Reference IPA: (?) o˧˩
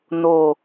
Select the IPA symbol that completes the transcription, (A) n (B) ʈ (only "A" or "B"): A